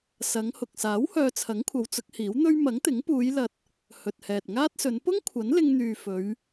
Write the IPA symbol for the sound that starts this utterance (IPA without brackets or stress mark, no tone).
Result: s